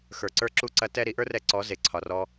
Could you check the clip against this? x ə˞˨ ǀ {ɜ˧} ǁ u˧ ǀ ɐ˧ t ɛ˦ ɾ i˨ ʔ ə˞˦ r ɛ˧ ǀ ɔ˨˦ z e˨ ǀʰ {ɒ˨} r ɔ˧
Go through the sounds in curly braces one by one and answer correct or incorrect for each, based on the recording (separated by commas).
incorrect, correct